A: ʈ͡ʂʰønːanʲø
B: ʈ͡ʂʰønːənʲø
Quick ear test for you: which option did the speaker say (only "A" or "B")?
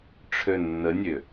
B